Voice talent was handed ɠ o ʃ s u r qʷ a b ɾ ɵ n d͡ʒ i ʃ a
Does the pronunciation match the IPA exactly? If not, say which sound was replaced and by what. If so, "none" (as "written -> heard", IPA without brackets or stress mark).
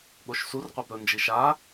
none